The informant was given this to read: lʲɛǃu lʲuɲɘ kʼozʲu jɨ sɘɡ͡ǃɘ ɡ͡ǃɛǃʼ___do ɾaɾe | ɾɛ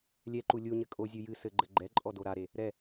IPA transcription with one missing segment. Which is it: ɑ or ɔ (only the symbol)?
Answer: ɔ